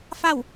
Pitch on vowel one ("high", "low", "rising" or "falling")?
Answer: falling